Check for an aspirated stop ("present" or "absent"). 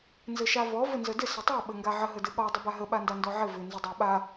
absent